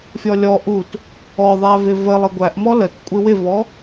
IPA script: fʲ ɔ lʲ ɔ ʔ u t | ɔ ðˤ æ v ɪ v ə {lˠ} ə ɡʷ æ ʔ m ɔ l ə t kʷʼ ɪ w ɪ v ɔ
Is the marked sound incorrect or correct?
correct